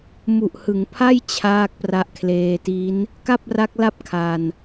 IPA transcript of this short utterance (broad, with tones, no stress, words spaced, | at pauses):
mu˨˩ʔhɯ˩˦ŋpʰa˥˩j t͡ɕʰaː˥˩k̚pra˦˥ʔkʰleː˧ ti˦˥n | ka˥˩p̚ra˦˥k̚la˥˩p̚ kʰa˧n